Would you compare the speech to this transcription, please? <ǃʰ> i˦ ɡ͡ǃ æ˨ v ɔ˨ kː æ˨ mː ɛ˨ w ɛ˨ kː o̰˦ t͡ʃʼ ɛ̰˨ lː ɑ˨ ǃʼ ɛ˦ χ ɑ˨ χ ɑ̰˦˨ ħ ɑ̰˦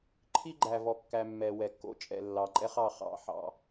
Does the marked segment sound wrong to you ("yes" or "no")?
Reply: no